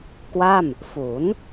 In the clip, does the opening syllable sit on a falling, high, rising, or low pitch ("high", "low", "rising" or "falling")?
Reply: falling